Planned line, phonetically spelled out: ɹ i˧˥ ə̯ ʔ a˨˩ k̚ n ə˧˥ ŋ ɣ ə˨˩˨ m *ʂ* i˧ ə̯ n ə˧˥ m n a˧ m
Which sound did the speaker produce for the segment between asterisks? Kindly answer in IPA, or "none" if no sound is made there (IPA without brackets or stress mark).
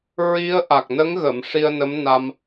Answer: ʂ